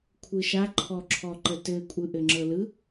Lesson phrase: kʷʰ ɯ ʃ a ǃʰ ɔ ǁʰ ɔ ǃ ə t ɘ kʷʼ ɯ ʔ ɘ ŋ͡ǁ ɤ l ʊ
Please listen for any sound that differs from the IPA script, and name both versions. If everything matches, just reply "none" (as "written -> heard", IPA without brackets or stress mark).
ʊ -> ɯ